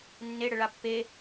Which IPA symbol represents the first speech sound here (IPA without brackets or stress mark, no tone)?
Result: nː